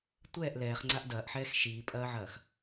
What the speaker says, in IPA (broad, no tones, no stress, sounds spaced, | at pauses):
tʷ ɛː ʔ l ɛː χ ŋ͡ǀ a ʔ d ɐː ʔ ħ ɛː x ʃ iː pʼ ɐː ʕ ɐː x